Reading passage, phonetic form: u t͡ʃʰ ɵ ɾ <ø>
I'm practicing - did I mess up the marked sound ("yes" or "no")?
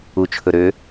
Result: no